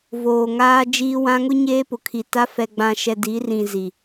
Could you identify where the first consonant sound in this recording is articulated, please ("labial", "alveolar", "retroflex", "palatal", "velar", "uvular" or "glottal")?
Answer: labial